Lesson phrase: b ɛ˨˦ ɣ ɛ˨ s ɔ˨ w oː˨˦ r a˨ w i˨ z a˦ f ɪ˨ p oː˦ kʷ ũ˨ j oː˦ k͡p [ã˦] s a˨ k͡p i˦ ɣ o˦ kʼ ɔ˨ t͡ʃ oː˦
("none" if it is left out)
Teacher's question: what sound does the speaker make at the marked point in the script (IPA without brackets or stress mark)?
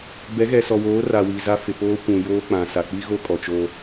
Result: ã˨